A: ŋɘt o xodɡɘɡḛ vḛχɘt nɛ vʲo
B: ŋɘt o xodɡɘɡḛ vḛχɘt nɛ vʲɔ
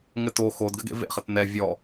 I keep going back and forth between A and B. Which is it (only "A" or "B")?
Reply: B